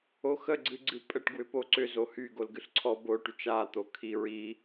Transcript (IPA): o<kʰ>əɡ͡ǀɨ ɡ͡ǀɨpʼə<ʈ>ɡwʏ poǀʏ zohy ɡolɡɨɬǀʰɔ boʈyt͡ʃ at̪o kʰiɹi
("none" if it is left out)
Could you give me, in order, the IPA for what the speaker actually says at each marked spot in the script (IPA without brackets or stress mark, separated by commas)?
x, ʈ